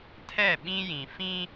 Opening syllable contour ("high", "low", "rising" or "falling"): falling